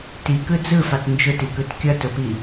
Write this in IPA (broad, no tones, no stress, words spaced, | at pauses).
tikɯ d͡zɯfɑt nd͡ʒʊtikɯt kʲʌtʊpi